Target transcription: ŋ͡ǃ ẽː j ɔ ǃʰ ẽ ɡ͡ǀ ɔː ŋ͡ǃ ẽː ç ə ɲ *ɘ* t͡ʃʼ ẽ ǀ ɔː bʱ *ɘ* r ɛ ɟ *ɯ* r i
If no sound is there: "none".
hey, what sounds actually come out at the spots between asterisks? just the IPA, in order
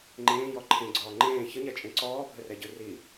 ɛ, ɘ, ɯ

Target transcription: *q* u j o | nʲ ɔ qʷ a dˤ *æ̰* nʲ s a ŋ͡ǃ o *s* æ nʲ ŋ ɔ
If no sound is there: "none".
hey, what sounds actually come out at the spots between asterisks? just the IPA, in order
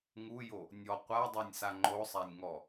ŋ, æ, sˤ

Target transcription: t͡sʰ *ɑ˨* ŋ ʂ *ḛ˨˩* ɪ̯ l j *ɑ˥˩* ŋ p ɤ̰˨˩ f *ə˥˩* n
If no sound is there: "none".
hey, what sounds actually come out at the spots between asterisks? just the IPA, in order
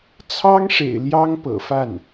ɑ˥, ḛ˨˩, ɑ˥, a˥˩

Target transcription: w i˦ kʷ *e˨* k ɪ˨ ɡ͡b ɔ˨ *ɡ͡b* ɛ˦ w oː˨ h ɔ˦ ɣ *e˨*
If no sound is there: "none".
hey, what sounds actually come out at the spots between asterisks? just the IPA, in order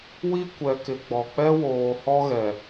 ɛ˨, k͡p, ɛ˨

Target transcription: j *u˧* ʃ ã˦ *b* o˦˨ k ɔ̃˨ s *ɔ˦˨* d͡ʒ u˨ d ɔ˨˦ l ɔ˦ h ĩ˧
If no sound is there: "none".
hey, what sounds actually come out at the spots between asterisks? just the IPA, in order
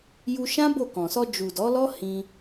u˧, b, ɔ˧

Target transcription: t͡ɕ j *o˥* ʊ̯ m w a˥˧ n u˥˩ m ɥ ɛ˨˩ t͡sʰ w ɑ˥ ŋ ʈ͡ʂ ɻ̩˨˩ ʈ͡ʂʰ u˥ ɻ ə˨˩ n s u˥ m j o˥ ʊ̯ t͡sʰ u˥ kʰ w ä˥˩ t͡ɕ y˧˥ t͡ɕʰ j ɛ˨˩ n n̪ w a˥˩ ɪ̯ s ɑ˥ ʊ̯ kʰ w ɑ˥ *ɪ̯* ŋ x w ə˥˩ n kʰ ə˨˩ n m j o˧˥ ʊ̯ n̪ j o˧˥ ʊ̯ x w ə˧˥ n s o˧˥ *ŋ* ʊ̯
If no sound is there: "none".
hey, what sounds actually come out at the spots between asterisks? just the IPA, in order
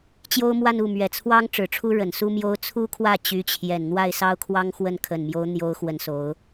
o˥, none, none

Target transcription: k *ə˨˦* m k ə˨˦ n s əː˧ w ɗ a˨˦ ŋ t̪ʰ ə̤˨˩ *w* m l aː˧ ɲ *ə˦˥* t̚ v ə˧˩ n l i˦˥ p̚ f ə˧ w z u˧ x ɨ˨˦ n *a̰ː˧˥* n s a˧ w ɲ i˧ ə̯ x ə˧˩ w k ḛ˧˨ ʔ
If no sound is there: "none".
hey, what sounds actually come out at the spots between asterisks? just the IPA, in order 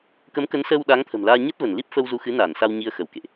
ə˨˦, none, ə˦˥, aː˧˩

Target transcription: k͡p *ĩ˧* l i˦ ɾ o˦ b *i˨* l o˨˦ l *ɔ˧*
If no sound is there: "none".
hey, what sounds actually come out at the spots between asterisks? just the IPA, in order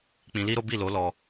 ĩ˧, i˦˨, ɔ˧

